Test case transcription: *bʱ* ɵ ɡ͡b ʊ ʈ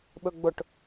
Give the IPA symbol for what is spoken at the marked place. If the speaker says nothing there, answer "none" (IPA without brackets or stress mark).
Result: ɓ